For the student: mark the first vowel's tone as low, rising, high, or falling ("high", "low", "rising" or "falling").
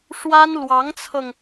high